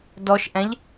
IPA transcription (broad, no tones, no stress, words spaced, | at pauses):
dɔʃʔɛ̃ʎ